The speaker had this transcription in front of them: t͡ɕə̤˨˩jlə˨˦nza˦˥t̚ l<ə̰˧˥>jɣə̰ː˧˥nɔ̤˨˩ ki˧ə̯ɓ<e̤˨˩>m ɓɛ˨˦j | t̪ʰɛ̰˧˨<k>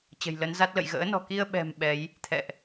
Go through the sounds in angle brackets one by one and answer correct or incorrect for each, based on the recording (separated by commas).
incorrect, incorrect, incorrect